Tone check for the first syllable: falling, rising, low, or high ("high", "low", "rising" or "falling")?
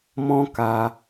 high